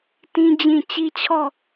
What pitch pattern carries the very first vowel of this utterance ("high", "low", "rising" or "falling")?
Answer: high